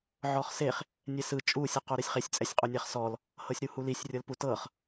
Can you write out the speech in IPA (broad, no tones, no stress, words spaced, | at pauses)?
ʕɔχseχ | nʲɛsɯ t͡ʃʼu sʲɯqoɾesʲχesʲ t͡sʼɛsʲqʼonʲaχsɔl | hɤsʲɾuhulisʲ rʲɤlputɤχ